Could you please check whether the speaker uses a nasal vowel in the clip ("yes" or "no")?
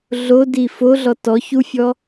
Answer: no